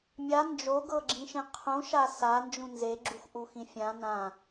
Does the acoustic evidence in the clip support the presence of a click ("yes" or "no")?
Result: yes